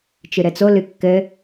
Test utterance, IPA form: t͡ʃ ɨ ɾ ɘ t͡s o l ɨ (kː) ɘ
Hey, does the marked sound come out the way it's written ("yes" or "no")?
yes